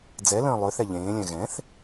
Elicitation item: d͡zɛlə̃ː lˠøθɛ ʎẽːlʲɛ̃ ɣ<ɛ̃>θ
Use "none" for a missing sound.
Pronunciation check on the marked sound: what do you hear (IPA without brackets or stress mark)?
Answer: ɛ̃